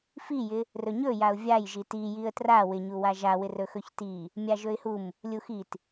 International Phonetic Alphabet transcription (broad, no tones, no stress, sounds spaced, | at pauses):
f i j ɪ | r ɵ ɲ ɵ j a ʊ̯ vʲ a j ʒ i t i j i ə̯ t r a w ɪ ɲ u w a ʒ a w ɪ r ɵ x ɵ ç t i | mʲ a ʒ ɵ ɪ̯ h u m | lʲ u x i t